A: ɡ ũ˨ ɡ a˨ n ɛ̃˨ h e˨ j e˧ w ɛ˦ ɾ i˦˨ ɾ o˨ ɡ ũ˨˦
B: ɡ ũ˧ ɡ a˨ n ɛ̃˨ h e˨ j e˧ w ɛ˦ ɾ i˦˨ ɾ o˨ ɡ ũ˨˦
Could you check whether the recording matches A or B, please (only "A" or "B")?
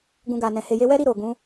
B